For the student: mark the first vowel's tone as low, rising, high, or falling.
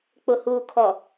low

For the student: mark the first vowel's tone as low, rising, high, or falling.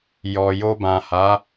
low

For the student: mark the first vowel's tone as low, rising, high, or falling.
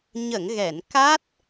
low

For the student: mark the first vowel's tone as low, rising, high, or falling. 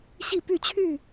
falling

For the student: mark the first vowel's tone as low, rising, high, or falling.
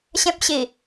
high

